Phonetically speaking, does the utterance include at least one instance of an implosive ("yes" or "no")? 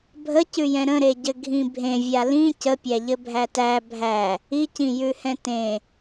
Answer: no